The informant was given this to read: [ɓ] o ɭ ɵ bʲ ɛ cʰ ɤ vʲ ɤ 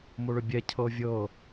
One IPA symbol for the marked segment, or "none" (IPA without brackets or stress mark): m